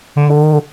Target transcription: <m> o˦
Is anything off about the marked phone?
no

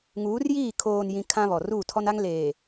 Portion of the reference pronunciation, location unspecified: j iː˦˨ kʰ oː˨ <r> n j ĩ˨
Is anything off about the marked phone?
yes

